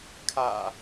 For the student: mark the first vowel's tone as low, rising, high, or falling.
low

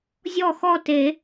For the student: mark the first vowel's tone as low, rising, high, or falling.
falling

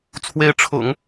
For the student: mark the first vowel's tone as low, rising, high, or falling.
rising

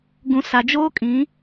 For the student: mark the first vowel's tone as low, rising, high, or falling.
low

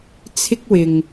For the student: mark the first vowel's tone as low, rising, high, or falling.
high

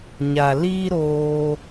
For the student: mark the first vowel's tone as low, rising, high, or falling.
low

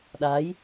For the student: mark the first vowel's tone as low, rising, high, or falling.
rising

